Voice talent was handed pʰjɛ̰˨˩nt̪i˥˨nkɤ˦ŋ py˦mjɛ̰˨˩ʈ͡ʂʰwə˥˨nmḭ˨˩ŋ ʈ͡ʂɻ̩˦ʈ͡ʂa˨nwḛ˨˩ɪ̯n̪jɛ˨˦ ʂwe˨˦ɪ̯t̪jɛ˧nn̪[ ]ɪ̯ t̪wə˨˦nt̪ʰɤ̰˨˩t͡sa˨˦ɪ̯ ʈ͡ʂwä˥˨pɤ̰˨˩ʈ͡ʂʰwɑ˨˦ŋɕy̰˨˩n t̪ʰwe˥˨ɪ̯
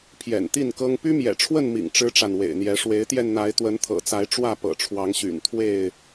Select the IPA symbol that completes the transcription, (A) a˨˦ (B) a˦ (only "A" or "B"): A